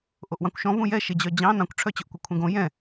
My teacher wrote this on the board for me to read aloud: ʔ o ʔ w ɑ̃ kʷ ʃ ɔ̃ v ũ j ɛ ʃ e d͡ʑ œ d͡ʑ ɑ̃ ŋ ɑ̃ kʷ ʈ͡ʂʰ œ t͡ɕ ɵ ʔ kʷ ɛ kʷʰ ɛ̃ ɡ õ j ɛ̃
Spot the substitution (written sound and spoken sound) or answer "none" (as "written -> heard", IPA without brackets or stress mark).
ŋ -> n